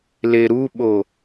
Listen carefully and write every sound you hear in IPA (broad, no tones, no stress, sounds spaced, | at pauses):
l e ɾ u ɓ o